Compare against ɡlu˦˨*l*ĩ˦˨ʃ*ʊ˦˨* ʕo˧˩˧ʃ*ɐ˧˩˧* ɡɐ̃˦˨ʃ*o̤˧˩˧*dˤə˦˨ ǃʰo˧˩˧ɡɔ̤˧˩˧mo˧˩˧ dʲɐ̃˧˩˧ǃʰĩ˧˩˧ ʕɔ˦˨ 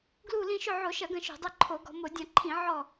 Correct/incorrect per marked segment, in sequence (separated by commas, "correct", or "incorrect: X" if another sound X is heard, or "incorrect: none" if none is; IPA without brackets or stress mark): correct, correct, correct, correct